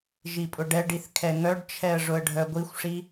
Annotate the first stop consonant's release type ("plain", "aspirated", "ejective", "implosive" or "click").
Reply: ejective